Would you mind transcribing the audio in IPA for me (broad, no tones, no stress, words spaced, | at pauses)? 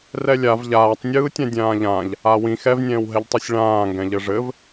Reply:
rɛlʲav ʎaːtˤnʲɯːtʲã dʲãːʎãʎ | awĩ xɛvnʲɛ̃ːwɦɛʎtˤisʲ ɭãːŋɡɛ̃ ʎɘʐɘv